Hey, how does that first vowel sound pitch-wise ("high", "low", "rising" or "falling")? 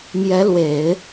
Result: rising